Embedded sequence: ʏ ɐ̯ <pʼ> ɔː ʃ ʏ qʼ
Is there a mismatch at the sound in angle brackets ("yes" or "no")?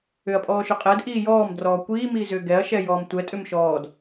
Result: no